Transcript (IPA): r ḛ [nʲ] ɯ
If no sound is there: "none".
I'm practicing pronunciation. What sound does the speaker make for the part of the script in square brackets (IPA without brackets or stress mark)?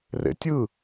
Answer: tʲ